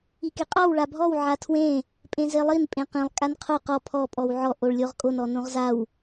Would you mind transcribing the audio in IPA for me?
i k e qʼ ɔ w ɭ a bʱ ɔ w ʕ a tʰ w ẽ | pʼ ẽ z e lˠ i n pʼ ẽ q ĩ lˠ kʼ a n qʰ o q ɔ pʰ ɔ pʼ ɔ w ʕ ɔ ʔ o ɭ lʲ o ʁ kʼ o n ɔ n õ ʁ z a w

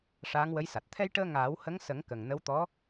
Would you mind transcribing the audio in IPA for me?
ʂ aː˧˥ ŋ w ə˧˥ j s a˨˩ t̚ t̪ʰ ɛ˧ j ʈ əː˧ ŋ aː˨˩˦ w h ə˧˥ ŋ s ə˨˩˦ ŋ k ə˨˩ ŋ n ə˧˥ w t̪ ɔ˧˥

